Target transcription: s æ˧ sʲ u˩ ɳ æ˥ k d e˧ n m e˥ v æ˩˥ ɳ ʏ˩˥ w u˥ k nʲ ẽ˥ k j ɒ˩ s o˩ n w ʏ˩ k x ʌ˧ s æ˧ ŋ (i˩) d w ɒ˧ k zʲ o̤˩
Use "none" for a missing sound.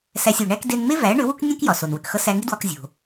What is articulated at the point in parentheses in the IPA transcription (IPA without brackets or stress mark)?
i˥